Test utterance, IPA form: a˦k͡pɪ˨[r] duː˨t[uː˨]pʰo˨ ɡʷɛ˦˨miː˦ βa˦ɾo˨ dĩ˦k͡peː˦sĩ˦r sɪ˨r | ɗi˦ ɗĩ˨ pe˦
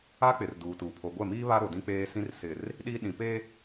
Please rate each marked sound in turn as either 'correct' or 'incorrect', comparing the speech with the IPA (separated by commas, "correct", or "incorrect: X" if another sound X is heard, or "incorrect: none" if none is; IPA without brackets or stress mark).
correct, correct